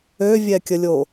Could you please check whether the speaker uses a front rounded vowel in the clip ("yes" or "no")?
yes